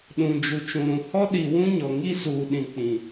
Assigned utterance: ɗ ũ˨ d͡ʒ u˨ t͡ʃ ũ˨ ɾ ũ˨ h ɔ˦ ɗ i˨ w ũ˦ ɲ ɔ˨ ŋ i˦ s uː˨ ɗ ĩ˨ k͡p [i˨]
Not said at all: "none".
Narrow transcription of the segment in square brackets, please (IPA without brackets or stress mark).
ĩ˨